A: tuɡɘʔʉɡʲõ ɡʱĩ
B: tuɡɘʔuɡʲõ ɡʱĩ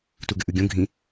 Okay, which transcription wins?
A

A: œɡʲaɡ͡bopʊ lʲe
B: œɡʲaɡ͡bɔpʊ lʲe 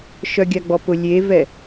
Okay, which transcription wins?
B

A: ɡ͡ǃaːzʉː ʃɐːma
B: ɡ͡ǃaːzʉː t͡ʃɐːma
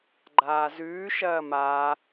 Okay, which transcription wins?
A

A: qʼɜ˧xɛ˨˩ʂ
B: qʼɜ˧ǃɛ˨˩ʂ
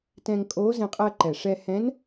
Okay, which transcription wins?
B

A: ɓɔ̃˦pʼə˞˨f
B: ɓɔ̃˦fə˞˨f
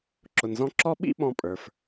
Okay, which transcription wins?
A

